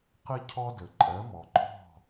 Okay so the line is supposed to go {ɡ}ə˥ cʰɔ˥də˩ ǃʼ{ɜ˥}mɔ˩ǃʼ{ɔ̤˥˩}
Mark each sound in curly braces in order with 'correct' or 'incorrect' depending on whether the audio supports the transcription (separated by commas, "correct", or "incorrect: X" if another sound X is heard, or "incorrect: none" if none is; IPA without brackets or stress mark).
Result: incorrect: q, incorrect: ɜ˩˥, correct